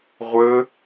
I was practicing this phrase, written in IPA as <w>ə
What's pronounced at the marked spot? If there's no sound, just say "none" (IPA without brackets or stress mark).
ʁʷ